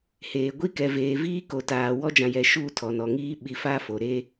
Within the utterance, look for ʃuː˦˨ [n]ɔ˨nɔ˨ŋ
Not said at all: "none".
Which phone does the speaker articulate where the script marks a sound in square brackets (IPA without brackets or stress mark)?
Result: tʰ